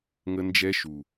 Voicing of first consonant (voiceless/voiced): voiced